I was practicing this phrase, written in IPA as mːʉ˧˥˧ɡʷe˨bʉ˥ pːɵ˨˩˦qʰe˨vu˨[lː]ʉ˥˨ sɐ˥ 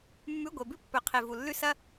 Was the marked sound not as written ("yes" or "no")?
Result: no